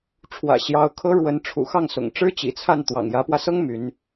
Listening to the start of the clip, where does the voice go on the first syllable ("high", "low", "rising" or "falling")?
low